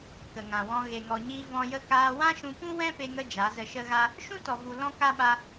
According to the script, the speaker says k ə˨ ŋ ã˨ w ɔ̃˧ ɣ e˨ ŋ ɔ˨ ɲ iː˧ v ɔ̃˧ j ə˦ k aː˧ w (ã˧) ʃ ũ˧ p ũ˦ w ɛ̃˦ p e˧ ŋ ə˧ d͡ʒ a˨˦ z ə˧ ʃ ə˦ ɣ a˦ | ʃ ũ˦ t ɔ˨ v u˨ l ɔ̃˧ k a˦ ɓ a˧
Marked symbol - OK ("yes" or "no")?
no